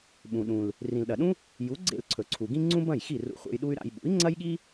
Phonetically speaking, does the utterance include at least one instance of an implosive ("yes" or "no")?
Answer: yes